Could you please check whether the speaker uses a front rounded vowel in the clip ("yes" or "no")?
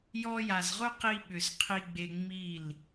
yes